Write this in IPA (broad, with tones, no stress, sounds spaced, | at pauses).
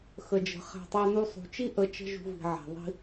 x ə˨ d͡ʒ ə̤˨ χ æ̤˧ tˤ æ˦ n u˦ sˤ ṳ˨ t͡ʃ i˦ ʔ ə˧ t͡ʃ ə̤˦ ʒ ṳ˧ v i̤˨ ʕ æ̤˨ ðˤ i̤˦